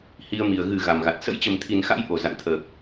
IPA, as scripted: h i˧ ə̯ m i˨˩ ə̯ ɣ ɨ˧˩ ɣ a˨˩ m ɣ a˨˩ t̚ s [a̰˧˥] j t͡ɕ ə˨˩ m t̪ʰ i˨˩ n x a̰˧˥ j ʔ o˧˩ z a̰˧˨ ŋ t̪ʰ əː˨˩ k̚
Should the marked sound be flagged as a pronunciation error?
yes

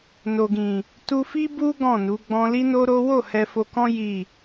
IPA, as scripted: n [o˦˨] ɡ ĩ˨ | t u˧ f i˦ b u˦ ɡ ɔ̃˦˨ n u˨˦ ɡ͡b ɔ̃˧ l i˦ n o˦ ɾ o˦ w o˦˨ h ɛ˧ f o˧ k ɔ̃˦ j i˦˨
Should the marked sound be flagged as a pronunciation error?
yes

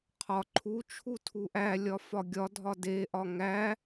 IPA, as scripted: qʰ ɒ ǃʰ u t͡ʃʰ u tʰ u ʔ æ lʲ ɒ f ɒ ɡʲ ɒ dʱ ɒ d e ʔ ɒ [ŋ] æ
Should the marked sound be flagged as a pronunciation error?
no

